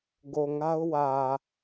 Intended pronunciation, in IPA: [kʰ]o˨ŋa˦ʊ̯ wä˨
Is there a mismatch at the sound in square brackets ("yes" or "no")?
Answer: yes